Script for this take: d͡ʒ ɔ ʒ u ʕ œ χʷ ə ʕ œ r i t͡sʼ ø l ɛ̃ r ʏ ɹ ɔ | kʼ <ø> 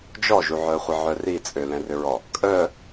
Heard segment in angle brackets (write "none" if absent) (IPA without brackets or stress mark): œ